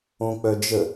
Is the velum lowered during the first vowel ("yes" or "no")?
yes